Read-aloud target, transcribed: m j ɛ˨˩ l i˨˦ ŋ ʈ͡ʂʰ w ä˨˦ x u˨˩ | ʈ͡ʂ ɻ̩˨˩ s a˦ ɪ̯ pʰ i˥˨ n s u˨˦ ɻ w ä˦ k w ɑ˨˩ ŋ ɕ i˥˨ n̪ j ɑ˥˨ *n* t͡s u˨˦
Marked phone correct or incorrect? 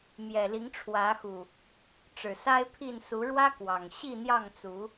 incorrect